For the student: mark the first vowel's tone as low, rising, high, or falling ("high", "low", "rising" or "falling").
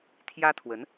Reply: high